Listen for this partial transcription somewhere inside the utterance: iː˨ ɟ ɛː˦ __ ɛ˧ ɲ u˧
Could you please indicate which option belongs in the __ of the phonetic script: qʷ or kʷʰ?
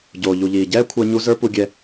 kʷʰ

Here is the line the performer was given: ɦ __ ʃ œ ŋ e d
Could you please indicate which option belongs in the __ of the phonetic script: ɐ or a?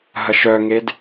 ɐ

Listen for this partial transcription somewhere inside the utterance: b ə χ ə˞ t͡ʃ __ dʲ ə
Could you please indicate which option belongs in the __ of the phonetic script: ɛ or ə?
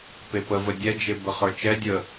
ɛ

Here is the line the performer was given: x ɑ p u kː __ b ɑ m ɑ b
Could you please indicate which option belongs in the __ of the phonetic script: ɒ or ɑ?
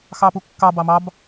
ɑ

